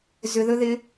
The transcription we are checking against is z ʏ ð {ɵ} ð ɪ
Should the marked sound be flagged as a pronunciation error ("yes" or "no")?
no